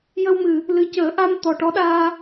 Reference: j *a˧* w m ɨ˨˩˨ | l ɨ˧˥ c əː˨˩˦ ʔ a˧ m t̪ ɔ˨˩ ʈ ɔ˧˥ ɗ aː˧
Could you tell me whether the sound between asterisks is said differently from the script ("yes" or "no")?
yes